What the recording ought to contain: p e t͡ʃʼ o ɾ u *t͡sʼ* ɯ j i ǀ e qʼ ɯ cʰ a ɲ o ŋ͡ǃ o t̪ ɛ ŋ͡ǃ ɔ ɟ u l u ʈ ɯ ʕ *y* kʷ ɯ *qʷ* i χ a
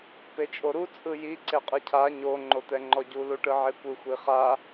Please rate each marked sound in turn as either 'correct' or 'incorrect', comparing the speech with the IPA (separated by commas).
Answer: correct, incorrect, incorrect